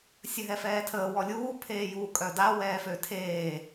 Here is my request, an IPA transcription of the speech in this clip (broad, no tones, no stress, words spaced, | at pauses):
sʲəɦɛfɛːtʰəː wɔlʲuː pʰeːjuːkʼœda wɛːføtʰeː